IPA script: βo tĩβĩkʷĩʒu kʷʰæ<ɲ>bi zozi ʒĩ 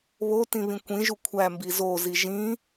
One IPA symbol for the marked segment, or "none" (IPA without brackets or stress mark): m